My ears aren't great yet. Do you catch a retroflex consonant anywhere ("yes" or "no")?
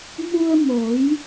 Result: no